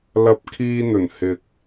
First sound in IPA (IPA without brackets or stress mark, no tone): l